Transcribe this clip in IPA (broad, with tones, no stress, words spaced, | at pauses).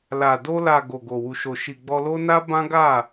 la˨ do˧la˨ ɡo˨ɡo˨ wu˨ʃo˨ ʃi˨ɡ͡bɔ˧lo˦ na˦bã˦ɡa˦˨